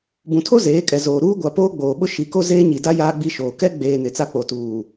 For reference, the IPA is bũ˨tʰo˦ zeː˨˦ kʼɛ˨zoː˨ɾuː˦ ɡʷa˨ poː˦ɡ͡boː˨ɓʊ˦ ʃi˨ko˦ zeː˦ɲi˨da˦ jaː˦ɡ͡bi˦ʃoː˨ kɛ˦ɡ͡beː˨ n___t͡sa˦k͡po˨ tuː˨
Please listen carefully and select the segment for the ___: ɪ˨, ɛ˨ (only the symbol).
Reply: ɪ˨